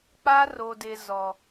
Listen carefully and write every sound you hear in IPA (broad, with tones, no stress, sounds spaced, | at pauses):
k͡p a˦ r o˨ d ɪ˨ z ɔ˨